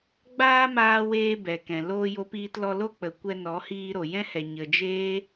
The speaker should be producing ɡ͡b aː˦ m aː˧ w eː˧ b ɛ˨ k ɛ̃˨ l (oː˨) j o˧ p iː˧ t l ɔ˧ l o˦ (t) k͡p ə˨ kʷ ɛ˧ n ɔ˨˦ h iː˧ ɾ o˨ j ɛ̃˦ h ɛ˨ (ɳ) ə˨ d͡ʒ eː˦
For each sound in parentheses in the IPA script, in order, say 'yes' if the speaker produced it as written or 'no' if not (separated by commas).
no, no, no